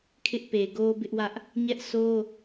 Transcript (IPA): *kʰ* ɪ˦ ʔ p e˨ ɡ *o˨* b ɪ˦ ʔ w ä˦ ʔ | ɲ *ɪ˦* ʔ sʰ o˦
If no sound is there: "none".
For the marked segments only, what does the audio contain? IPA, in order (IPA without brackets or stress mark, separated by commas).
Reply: kʰ, o˦, ɛ˦